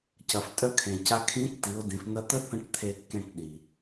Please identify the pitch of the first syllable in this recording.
low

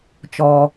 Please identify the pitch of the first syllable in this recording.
low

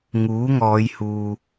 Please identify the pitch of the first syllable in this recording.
rising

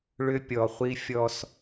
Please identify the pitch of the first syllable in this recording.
high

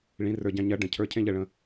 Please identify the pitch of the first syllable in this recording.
rising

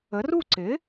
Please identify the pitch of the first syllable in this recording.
rising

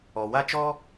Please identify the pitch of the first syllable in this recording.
low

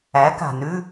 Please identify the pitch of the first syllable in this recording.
rising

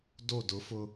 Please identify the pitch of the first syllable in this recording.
falling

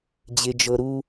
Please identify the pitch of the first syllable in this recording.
low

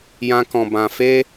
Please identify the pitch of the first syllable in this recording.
high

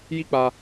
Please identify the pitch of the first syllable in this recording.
high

